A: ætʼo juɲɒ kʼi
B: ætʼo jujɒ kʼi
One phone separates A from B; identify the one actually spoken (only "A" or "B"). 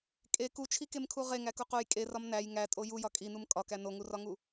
B